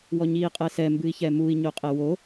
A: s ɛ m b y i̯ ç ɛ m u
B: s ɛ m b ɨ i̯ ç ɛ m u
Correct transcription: B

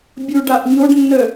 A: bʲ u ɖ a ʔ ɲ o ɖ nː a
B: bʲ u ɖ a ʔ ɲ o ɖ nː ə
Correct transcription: B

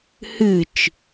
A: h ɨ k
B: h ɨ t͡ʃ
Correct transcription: B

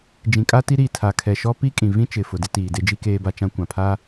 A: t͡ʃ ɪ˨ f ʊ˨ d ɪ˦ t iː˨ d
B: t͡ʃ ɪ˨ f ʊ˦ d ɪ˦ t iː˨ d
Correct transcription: A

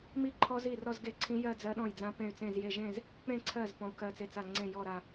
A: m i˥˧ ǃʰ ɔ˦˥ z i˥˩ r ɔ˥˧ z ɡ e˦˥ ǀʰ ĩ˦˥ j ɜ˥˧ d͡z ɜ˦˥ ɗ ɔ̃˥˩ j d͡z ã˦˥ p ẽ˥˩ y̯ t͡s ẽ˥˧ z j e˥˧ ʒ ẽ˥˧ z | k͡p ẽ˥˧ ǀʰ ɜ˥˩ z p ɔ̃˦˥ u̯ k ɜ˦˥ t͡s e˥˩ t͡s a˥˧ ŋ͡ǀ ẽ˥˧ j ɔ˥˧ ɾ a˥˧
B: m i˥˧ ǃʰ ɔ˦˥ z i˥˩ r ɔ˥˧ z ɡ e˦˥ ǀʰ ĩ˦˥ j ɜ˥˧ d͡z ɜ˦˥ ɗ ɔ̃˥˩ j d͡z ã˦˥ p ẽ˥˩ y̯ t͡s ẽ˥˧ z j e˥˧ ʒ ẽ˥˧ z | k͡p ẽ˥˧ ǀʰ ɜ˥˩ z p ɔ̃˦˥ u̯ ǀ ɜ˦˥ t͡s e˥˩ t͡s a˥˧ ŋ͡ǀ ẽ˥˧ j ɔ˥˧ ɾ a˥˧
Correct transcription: A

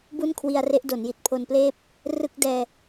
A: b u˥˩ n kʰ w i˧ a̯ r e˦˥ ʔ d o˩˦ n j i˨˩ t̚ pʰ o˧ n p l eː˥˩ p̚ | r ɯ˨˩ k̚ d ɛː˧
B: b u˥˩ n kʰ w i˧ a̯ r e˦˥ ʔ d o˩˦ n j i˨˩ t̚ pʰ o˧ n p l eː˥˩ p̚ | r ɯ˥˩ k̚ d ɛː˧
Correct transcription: B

